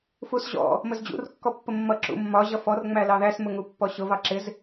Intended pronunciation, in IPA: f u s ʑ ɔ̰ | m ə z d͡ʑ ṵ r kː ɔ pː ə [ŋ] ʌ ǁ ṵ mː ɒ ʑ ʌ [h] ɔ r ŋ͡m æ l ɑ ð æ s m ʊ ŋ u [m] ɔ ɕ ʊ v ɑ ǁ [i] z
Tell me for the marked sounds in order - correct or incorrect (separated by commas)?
incorrect, incorrect, incorrect, incorrect